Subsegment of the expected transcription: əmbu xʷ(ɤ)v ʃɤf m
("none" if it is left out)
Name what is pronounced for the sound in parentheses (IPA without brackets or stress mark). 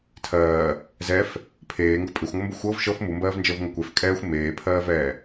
ɤ